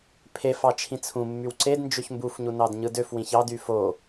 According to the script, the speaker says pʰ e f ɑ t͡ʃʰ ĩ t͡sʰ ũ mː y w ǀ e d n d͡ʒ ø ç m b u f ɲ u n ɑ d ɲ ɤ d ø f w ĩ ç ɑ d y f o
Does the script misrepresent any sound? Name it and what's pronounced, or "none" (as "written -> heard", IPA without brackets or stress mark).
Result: ɤ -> ɯ